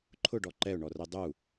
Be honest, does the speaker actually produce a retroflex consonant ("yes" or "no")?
yes